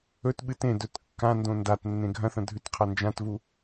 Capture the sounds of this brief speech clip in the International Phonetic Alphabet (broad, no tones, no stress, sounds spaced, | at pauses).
ɵ t ɓ ɨ t ẽ d ɵ t kː ã n d õ n d a t nː ẽ ɡʱ ɐ̃ θ ɐ̃ dʱ ʉ t qʰ ɐ n d͡ʒ ã t v u